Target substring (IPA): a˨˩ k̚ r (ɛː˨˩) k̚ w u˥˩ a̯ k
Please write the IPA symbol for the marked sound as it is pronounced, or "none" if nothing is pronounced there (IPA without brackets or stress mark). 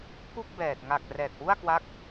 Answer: ɛː˨˩